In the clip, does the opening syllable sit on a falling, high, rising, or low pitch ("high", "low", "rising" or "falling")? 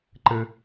low